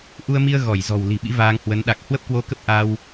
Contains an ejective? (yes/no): no